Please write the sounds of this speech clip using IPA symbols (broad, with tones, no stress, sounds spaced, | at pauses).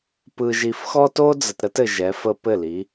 p ɯ˨ ʒ i˨ f x ɔ˦ t o˦ d͡z ə˨ t ɾ ə˦ t ɘ˨ ʒ ɛ˨˦ f ə˦ p ɘ˦˨ l i˨˦